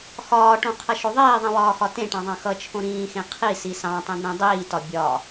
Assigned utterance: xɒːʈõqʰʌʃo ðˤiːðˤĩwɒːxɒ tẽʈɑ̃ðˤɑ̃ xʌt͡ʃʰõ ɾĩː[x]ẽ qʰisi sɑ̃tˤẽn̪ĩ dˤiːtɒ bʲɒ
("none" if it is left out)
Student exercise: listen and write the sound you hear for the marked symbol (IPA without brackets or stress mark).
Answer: x